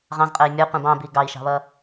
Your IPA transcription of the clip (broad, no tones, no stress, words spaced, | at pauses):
ʁɑ̃zqʼəi̯ mʲʌ qʷĩbɑ̃bi ɡɑi̯ʃɑ̤βʌ